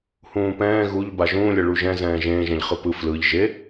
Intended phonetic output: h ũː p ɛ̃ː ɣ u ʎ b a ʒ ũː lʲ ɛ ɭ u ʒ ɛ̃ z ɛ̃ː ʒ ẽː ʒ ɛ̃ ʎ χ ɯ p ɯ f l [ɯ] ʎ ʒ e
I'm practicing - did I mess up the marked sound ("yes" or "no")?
no